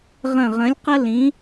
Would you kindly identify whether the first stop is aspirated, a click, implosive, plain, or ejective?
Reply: plain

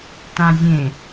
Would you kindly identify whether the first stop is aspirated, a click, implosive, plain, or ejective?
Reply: plain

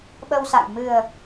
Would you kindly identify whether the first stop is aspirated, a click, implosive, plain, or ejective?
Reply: implosive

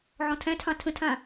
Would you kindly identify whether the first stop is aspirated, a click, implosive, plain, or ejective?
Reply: aspirated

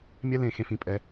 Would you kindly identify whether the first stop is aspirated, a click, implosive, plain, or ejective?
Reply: ejective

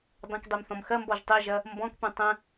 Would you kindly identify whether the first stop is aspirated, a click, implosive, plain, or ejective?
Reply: plain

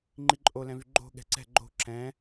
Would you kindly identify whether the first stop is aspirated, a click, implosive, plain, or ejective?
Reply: click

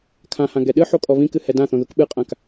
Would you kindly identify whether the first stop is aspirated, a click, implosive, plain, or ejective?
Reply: aspirated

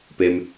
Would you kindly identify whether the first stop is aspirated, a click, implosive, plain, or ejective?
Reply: plain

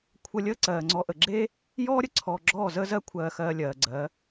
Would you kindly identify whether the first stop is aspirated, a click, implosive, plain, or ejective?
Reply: aspirated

